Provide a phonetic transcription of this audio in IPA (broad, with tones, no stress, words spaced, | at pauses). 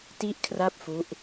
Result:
ti˥˩ʔkʰra˥˩p̚fu˦˥ʔ